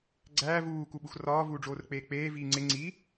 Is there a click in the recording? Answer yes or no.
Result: yes